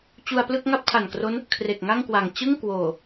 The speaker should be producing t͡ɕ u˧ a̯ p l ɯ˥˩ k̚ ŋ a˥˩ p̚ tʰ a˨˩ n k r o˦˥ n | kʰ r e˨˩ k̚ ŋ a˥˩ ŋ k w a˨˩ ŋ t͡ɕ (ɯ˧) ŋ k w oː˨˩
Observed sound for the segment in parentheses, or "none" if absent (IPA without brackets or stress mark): ɯ˥˩